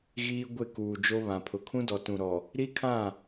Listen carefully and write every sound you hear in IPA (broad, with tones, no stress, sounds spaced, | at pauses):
ɣ iː˦ ɡʷ e˦˨ k uː˨ d͡ʒ o˦ β ã˨ pʰ ʊ˨ kʰ ũ˦ d ɔ˨ t ũ˨ ɾ ɔ˨ | ɾ i˦ kʰ ã˦˨